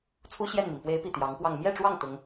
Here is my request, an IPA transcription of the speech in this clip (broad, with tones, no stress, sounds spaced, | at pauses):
t͡sʰ u˥ ɕ j ɛ˥˩ n m i˩ n f w e˧˥ ɪ̯ p i˨˩ t̪ j ɑ˧˥ ŋ p w ɑ˥˧ ŋ m j ɛ˥˧ ʈ͡ʂ w ɑ˥˩ ŋ t̪ ʊ˥ ŋ